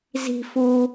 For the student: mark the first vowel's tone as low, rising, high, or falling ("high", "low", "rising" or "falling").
high